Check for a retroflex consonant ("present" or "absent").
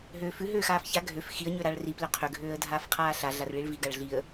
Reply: present